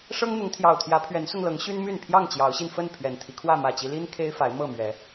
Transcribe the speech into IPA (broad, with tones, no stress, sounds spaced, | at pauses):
ʂ ɤ˦ ŋ n̪ ʊ˨˦ ŋ t̪ʰ j ɑ˨˩ ʊ̯ t̪ʰ j ä˨˦ pʰ ɥ ɛ˨˦ n s ʊ˧ ŋ l ɤ˨˦ ŋ ɕ y˦ n m y˥˨ n pʰ j ɑ˥˨ ŋ t͡ɕ j ɑ˨˦ ʊ̯ ɕ i˧ n f ə˥˨ n pʰ ɥ ɛ˨˩ n t̪ʰ i˦ kʰ w ä˥˨ m ä˨˩ t͡ɕ i˦ l i˦ n kʰ e˦ ɪ̯ f a˨˦ ɪ̯ m ɤ˥˨ m ɥ ɛ˨˦